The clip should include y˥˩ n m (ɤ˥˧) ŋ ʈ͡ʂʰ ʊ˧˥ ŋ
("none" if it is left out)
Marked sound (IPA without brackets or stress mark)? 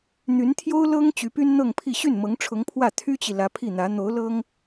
ɤ˧˥